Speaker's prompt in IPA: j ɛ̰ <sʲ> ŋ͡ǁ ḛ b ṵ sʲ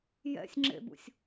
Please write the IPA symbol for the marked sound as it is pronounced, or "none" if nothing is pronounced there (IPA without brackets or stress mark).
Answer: sʲ